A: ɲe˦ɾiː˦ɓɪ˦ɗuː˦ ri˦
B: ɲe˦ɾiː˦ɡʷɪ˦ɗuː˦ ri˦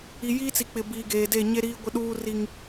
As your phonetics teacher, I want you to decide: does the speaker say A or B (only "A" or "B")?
B